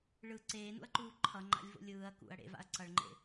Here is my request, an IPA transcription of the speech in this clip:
ɭ ɯ ǀ eː n ṵ ɐ̯ ǃ uː ǃʰ ʌ ŋ͡ǃ a̰ lʲ v o̰ lʲ ɯː ɐ̯ k ṵ ɐ̯ ɽ ḛ v a̰ ɐ̯ ǀ ʌ ɭ ŋ͡ǃ ḛ

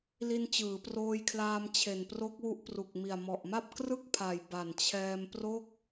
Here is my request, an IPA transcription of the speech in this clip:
l i˧ n t͡ɕ ɯː˩˦ p r oː˧ j kʰ l aː˧ m t͡ɕʰ e˨˩ n p r o˦˥ k̚ w u˦˥ ʔ p r u˨˩ k̚ m i˨˩ a̯ m ɔ˨˩ ʔ m a˥˩ p̚ k r ɯ˥˩ k̚ pʰ a˨˩ j b a˨˩ n t͡ɕʰ ɛː˧ m p r o˥˩ k̚

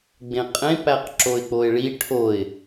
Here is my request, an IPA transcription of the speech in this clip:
ɡ͡b ẽ qʼ ẽ p æ q ǁ o ɪ̯ k͡p o ɪ̯ ɭ i ʈʰ o ɪ̯

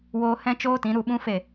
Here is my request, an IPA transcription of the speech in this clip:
w oː˦ h ɛ̃˦ t͡ʃ oː˦ t ĩ˨˦ ɾ u˧ ɓ ũ˦ f e˦˨

